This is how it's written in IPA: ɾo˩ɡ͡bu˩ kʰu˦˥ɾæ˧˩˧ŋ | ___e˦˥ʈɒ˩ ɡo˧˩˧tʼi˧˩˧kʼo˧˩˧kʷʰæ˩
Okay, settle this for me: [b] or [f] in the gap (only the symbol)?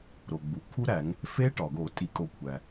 f